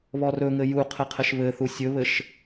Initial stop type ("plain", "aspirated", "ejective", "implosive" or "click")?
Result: aspirated